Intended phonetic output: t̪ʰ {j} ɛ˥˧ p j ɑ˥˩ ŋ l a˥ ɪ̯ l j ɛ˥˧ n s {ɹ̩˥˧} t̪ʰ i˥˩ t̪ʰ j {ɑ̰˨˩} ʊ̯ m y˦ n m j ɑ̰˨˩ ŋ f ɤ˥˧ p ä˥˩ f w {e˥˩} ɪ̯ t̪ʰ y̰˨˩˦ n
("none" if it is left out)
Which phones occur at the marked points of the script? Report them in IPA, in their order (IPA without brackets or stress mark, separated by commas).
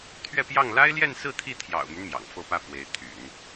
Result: ɥ, ɹ̩˥˧, ɑ̰˨˩, e˧˥